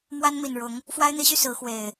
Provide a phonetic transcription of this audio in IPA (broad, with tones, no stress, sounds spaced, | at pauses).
m w a˦ n m i˨˩ n ɻ ʊ˨˦ ŋ | f w a˦ ɪ̯ n̪ i˨˦ ɕ y˧ s ɹ̩˨˦ x w e˨˩ ɪ̯